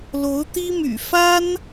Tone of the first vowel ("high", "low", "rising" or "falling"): rising